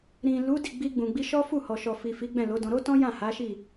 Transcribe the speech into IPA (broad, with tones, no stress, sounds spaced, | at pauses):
ɾ ĩ˨ l u˨˦ d i˦˨ ɡ͡b i˧ ɡ͡b ũ˨ ɡ͡b i˧ ʃ ɔ˦ f u˦˨ h ɔ˨ ʃ ɔ˨ f i˨ f i˨˦ ɡ͡b ɛ̃˦˨ l o˨˦ d ɔ̃˧ ɾ o˦ t ɔ̃˦ j ã˦˨ h a˨˦ ʃ i˦˨